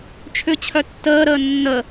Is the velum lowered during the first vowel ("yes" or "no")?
no